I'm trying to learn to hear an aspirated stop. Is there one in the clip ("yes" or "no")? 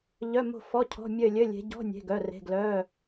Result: yes